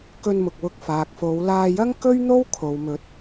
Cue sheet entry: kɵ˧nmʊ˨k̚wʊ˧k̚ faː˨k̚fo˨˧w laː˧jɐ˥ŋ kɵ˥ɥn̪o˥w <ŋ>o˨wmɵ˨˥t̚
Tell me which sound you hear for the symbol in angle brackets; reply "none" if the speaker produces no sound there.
kʰ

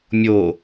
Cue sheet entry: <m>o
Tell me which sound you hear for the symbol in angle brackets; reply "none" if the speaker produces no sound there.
mʲ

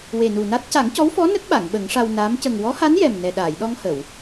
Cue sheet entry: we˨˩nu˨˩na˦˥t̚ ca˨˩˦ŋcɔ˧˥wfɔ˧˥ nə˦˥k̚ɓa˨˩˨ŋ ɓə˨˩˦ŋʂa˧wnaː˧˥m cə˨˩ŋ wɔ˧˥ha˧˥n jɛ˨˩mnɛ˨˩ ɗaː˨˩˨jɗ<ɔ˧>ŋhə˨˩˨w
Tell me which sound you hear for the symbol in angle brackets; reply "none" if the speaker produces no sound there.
ɔ˧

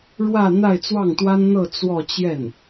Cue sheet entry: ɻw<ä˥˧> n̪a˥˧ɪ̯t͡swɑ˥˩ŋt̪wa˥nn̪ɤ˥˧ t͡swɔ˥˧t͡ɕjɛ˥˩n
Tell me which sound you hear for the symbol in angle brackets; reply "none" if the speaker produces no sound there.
ä˥˧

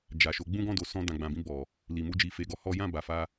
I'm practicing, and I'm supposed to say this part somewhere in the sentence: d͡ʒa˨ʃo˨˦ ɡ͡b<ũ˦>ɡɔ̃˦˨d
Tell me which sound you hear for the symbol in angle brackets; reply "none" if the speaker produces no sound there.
ũ˦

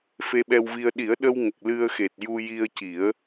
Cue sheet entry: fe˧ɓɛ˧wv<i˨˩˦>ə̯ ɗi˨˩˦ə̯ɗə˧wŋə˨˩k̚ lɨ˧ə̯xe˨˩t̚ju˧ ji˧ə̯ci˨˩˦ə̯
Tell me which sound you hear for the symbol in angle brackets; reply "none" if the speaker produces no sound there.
i˧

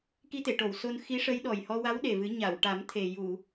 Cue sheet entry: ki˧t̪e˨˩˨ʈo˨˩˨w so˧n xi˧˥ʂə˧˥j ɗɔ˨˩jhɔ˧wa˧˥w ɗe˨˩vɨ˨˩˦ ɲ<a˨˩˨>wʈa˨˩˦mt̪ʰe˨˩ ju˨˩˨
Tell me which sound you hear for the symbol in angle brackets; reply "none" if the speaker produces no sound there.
a˨˩˨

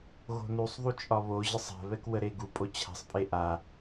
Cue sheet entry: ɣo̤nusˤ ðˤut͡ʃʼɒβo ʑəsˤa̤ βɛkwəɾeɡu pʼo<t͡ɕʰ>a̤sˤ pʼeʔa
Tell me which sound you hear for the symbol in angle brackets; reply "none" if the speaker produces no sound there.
t͡ɕʰ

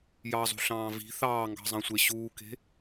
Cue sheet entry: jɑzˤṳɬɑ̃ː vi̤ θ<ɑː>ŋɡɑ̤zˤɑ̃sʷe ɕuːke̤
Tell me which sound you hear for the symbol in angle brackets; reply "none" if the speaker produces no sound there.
ɑː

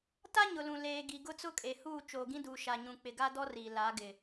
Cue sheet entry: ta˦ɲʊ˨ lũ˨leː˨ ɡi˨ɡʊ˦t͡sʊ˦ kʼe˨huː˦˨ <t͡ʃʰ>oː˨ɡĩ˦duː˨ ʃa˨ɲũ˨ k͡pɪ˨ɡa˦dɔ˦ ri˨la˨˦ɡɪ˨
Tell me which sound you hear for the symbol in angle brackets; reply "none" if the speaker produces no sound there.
t͡ʃ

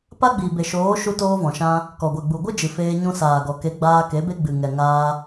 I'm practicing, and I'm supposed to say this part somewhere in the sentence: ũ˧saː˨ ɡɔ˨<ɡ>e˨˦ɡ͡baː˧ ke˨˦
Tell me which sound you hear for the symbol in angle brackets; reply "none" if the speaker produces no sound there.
k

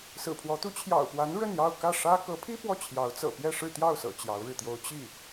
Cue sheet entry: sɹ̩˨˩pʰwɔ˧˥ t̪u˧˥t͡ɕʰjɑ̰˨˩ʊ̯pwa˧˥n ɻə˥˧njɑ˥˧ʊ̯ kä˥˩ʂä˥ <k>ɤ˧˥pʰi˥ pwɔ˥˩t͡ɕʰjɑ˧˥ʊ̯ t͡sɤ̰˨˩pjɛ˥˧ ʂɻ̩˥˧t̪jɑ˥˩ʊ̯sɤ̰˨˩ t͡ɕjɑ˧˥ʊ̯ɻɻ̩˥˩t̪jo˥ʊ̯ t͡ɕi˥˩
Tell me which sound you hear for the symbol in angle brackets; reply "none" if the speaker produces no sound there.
k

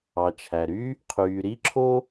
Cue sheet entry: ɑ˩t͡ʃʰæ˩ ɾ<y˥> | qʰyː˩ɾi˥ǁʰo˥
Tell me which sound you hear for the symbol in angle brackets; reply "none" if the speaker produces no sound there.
y˥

